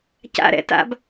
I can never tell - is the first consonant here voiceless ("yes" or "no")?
yes